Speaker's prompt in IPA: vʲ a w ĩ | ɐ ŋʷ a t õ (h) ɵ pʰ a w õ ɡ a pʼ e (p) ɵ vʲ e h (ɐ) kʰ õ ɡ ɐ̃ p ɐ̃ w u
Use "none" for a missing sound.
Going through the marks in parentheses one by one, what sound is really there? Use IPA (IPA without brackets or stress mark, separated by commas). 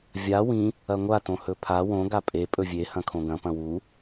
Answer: h, pʼ, ɐ̃